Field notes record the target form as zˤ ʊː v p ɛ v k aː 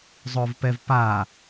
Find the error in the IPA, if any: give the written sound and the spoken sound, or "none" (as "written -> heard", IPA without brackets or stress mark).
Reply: k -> p